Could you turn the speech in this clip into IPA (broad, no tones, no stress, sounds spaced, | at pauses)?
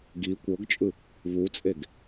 ɡ i kʷ ɤ ɡ t͡ʃʼ ɯ | β u t͡sʼ e ɡ